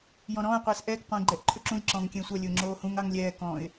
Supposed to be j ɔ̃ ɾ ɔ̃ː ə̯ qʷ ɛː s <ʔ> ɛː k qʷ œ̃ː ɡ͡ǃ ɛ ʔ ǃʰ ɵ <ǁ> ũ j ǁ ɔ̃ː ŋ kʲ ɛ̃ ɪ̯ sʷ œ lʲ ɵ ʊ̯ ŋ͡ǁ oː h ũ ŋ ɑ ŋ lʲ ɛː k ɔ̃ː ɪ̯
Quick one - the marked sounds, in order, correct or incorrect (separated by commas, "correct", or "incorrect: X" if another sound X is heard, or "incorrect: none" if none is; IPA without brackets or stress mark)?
correct, correct